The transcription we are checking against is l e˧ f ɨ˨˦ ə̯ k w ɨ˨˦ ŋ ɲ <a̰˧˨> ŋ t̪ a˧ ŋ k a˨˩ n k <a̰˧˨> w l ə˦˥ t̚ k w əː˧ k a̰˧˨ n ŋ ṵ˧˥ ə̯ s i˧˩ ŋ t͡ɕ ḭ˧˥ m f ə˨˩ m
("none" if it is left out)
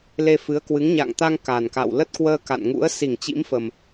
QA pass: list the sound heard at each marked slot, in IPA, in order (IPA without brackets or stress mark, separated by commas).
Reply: a̰˧˨, a̰˧˨